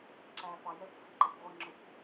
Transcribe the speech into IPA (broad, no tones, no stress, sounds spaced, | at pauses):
ǁ æ f ɑ j ɛ kʷ f i ǃ ɜ kʷ ʁʷ ʌ ŋ͡ǁ ʊ kʷ